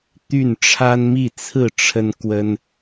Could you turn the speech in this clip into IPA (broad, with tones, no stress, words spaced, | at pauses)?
t̪y˥˨n ʈ͡ʂʰa˦nmi˥˨ t͡sʰɹ̩˥˨ʈ͡ʂʰə˦nkwə˦n